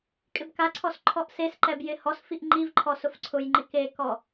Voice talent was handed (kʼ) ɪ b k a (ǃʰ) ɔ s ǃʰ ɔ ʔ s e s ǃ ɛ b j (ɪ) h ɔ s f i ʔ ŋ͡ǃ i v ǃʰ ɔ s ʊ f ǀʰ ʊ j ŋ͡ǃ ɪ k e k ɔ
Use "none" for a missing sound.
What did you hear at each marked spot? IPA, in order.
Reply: kʼ, ǀʰ, ɪ

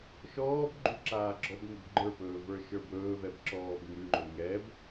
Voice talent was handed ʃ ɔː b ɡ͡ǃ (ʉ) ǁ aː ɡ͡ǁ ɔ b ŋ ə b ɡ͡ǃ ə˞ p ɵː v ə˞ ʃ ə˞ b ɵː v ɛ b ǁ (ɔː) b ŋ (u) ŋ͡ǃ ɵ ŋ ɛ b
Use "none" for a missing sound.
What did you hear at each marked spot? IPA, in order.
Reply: ʉ, ɔː, ʉ

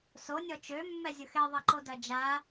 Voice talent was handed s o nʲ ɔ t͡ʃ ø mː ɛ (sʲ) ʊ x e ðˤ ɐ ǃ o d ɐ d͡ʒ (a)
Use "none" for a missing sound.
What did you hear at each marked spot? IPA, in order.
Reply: zʲ, a

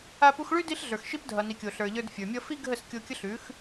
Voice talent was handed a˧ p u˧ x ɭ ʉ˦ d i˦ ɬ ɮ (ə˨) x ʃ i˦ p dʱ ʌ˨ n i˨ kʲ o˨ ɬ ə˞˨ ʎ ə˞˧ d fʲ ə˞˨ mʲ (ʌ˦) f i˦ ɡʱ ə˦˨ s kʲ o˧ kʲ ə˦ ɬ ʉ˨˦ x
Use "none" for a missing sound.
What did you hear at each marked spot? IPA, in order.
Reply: ə˞˨, ʌ˦

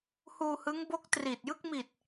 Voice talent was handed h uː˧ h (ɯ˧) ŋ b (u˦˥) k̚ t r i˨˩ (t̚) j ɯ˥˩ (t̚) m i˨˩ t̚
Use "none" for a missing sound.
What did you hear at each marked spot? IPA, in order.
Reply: ɯ˦˥, o˦˥, t̚, k̚

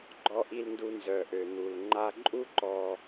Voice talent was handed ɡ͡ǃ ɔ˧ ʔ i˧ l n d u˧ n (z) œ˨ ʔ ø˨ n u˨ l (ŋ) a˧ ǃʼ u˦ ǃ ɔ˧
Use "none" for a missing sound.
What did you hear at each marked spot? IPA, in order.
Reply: z, ŋ͡ǃ

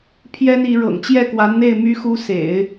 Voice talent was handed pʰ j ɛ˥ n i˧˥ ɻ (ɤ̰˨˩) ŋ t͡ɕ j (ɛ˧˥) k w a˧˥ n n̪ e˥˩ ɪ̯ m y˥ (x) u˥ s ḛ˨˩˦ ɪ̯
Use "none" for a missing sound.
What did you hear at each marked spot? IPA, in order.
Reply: ɤ̰˨˩, ɛ˥˩, x

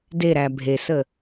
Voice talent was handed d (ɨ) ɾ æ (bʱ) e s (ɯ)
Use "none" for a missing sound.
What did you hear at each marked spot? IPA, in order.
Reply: e, bʱ, ə

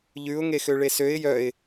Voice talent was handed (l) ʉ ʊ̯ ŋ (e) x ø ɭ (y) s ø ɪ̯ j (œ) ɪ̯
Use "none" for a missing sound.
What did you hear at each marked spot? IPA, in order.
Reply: ʎ, e, e, œ

